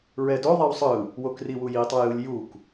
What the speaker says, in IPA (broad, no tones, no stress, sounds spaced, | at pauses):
ɹ ɛ d o ðˤ i w sˤ ɯ | w o k r i w u j i tˤ ʌ j ɯ lʲ j u k